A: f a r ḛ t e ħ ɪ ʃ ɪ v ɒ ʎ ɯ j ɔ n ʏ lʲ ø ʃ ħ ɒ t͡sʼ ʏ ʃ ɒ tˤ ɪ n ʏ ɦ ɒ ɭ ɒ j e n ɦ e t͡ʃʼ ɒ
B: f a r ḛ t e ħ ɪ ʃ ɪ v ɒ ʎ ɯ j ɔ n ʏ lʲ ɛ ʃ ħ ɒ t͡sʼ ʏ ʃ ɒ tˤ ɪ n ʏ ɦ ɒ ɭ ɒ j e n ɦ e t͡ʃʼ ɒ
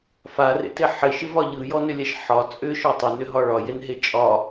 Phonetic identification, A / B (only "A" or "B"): B